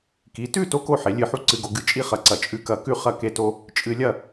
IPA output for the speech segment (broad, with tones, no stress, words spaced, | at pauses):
ki˩˧tʉ˥˧ to˥ ko˥˧ħe˩˧ lʲɨ˧˩ ħu˥ǀɨ˧ɡo˧ ɡɨ˧˩t͡ʃʼi˥χɐ˧˩ǀɐ˧˩ t͡ʃʼʉ˧kɐ˧˩kʉ˥˧ χɐ˥ke˥to˥ | t͡ʃʼɨ˧lʲɐ˥˧